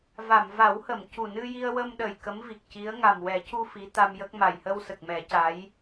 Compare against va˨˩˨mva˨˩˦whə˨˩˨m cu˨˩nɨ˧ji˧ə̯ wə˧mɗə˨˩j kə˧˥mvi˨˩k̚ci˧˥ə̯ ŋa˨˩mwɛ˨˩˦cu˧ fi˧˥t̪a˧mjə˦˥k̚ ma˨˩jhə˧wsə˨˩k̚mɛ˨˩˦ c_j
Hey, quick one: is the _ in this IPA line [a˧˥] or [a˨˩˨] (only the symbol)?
a˧˥